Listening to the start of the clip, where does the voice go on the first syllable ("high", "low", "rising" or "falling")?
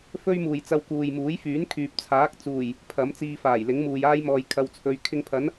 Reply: high